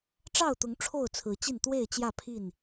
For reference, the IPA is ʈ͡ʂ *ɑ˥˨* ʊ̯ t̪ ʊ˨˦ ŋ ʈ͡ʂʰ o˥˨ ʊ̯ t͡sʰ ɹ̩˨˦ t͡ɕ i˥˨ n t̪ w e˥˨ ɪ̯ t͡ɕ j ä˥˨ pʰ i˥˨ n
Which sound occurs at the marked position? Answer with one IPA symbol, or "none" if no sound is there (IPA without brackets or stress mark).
ɑ˥˨